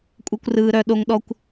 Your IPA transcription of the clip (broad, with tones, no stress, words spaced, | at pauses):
kʷʼe˧kʷrɯː˨ ɾœ˨ɗo˨ŋ ɗɔ˧kʷ